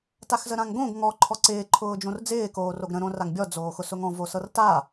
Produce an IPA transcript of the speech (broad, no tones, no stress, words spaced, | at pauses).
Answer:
taxzəɾãŋɡõɡ ŋɔ ǃʰɔǀɪː ǃʰʊːd͡ʒõrd͡zɪː koːroɡɾə̃ ɾõraŋbʲɔ d͡zoːxʊsʊŋɔ̃ vosɤrta